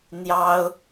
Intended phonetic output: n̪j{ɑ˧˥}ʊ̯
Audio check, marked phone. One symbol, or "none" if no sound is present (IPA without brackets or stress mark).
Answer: ɑ˥